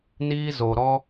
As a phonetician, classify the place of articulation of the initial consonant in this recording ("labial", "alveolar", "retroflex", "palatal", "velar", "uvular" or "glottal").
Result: alveolar